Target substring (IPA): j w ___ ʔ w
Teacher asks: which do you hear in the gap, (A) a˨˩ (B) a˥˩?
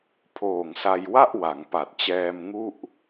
B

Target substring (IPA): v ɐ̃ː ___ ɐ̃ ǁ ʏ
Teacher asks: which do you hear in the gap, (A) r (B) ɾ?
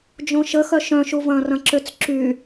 A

